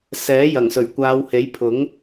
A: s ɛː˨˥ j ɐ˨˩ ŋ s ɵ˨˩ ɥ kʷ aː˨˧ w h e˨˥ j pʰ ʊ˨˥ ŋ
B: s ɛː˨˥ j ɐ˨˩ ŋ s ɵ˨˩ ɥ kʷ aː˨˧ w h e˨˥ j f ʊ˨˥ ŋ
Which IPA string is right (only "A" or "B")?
A